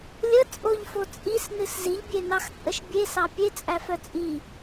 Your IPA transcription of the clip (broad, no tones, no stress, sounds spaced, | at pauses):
lʲ ə t͡sʼ o ʎ f o t͡sʼ i s n ɨ s z i ʎ bʲ e n ɑ x t͡sʼ ə ʃ bʲ e s ɑ pʲ e t͡sʼ æ f œ t͡sʼ i